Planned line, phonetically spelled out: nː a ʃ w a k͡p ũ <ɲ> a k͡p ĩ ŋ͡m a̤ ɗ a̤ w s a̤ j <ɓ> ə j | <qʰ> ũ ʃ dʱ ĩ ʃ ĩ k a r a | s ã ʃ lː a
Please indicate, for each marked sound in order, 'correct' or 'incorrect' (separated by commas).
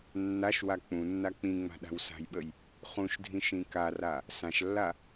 incorrect, correct, incorrect